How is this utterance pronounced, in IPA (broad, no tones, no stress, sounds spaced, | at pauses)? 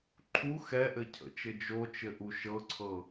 ǃʰ u x ɛ ʔ ɘ cʰ ə̰ t͡ʃ ɘ d͡ʒ o t͡ʃ ɘ ʔ u ʃ ɤ ǀʰ ɤ